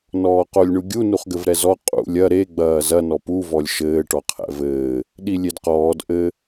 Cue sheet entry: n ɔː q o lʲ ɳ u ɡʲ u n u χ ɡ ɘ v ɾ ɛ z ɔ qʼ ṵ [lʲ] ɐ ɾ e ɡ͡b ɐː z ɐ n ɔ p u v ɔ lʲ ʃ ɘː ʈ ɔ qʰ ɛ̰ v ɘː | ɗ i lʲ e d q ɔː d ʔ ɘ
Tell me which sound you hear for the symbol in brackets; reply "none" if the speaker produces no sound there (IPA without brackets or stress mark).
lʲ